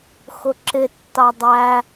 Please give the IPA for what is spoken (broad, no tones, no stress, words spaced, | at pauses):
xʊǁɪ tːɑdˤæ